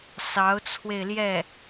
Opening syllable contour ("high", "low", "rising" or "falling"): rising